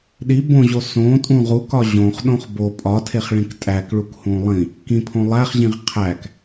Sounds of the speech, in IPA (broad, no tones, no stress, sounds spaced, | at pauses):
ɗ i b õ ʑ o s õ tʼ ũ ʁ u k ɒ ʑ õ χ ɗ õ χ b o pʼ ɒ tʰ e χ ɭ ĩ k tʼ æ k ɭ u k h ũ lˠ ĩ | k ĩ pʰ õ lˠ æ χ ʑ ĩ ʁ qʰ æ k